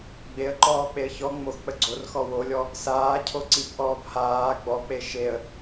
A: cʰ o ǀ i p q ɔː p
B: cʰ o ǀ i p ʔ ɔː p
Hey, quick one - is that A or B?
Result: B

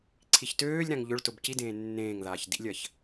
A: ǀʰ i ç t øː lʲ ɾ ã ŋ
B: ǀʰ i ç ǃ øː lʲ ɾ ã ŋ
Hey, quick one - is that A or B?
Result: A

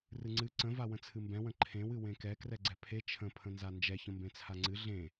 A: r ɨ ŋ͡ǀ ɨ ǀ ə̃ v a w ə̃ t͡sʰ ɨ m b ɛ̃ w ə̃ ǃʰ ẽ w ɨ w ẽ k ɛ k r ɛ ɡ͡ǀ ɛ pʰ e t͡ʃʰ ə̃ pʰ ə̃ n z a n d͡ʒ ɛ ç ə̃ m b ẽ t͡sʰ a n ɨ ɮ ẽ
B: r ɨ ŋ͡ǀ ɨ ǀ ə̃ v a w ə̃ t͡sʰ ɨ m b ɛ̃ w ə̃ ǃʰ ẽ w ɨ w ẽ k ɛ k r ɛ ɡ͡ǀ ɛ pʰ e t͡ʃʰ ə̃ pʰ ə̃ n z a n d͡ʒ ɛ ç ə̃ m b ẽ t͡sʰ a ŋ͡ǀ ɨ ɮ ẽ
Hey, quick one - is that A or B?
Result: B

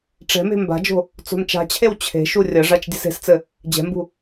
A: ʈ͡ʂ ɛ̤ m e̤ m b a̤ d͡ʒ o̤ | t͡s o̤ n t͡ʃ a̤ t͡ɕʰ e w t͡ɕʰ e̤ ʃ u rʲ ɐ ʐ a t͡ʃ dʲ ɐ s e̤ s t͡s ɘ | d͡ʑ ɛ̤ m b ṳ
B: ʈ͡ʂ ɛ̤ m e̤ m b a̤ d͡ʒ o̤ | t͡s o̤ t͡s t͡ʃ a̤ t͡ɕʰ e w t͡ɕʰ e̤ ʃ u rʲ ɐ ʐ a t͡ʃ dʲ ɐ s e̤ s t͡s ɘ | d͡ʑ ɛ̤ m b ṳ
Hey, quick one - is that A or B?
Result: A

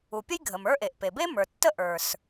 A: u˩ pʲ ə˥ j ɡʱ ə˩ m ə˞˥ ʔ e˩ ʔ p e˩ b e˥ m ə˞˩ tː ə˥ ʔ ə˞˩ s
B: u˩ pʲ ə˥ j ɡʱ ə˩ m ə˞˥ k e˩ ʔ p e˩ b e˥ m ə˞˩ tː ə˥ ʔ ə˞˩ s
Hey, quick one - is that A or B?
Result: A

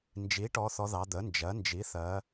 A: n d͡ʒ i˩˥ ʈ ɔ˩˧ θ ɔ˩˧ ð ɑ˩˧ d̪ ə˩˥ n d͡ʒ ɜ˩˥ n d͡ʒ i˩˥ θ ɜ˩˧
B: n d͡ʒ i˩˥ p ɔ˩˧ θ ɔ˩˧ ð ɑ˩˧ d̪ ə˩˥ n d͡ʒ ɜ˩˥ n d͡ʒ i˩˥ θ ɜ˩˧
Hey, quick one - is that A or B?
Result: A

